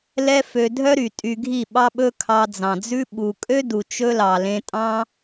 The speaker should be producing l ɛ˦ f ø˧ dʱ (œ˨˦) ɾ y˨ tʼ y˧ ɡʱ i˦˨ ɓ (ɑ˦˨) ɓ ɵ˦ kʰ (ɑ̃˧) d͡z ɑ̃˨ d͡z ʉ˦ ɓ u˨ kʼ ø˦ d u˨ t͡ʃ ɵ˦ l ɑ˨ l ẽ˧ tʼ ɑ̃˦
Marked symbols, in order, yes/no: no, no, no

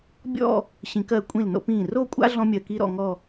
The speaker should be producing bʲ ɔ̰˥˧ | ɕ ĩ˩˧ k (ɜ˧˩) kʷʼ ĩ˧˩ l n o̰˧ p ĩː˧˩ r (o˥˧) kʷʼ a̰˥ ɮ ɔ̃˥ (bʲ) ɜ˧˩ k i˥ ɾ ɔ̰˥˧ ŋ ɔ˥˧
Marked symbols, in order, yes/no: yes, yes, no

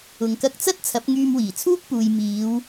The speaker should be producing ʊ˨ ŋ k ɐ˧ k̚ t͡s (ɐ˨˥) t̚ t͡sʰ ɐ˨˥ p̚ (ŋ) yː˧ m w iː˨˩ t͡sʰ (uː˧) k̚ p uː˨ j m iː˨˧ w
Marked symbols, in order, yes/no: no, yes, no

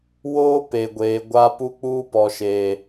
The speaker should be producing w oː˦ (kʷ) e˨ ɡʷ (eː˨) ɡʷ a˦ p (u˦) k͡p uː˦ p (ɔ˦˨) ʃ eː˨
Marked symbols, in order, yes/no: no, yes, yes, no

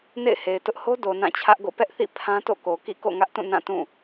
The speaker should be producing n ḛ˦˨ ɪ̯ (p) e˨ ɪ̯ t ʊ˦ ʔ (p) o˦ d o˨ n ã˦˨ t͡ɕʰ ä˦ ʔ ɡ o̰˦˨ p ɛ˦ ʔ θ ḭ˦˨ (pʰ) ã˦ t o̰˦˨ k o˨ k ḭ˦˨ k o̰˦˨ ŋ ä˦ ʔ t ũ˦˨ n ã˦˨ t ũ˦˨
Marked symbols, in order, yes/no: no, no, yes

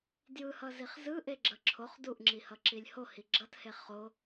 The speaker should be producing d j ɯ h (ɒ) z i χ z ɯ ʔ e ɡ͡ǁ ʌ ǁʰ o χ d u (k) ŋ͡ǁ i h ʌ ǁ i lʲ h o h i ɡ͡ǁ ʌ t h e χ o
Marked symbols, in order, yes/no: no, no

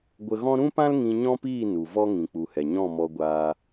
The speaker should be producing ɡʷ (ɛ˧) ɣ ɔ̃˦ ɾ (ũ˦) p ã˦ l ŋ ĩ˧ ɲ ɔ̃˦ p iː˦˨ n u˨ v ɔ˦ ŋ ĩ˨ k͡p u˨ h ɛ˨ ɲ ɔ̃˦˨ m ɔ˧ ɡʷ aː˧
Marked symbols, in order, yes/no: no, yes

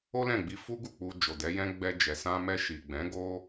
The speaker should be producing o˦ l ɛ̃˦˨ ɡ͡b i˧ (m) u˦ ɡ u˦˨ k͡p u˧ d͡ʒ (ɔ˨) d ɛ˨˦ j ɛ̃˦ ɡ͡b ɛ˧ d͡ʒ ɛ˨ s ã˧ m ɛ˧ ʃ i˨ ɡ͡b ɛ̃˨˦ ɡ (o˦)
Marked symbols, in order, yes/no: no, no, yes

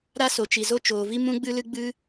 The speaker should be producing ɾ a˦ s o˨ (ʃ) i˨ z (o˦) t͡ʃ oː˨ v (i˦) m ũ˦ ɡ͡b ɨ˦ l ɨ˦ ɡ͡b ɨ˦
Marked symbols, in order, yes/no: no, yes, yes

